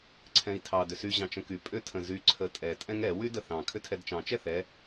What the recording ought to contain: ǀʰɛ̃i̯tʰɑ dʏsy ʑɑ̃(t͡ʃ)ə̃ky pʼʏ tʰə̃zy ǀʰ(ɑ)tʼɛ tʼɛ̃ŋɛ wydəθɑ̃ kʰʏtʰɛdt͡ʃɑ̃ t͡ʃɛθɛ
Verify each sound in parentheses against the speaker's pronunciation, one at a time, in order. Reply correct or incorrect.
correct, incorrect: ə

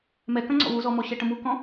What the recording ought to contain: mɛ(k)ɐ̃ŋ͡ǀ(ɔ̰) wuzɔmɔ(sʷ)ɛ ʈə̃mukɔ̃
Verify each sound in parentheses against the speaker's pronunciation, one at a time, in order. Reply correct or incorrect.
correct, correct, incorrect: ɕ

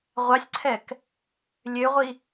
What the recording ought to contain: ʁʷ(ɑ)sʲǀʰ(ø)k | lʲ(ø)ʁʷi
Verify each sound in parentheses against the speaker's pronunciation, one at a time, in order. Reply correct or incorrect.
correct, incorrect: ɛ, correct

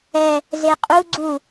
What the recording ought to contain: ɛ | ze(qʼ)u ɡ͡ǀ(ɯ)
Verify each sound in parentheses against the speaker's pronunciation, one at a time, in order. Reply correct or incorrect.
correct, incorrect: u

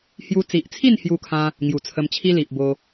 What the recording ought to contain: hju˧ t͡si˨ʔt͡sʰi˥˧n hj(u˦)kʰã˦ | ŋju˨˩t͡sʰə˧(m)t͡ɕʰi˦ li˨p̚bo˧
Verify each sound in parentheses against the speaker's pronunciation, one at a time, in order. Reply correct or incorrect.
correct, correct

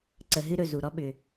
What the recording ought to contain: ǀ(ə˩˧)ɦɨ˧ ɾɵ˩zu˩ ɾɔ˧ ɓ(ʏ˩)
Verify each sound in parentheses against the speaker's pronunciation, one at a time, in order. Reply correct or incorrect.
correct, correct

